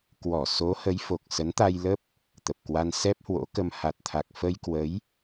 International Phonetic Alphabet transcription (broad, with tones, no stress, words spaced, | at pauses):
kwɔ˧˩ so˨˦hə˨˦j fo˨˩k̚ sə˨˦nt̪a˧jlə˦˥p̚ | t̪ə˨˩p̚kwa˧n sɛ˦˥p̚hwo̰˧˥kə˧m ha˨˩t̚t̪ʰa˨˩k̚ fə˧jkwə˨˦j